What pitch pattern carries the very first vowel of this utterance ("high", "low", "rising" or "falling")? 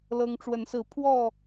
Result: high